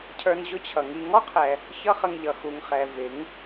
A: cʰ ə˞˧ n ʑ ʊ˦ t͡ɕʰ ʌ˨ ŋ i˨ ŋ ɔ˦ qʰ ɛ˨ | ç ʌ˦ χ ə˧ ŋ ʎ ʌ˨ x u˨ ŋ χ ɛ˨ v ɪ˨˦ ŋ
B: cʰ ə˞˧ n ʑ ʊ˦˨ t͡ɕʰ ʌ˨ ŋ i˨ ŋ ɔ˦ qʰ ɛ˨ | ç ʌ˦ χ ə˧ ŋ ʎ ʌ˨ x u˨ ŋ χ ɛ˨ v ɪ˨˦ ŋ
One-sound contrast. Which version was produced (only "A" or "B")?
A